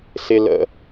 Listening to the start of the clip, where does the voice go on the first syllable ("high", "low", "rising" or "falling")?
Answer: low